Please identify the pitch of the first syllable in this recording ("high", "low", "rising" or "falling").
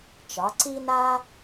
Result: rising